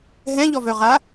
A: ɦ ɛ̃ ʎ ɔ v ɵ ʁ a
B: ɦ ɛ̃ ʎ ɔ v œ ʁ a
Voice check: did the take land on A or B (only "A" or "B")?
B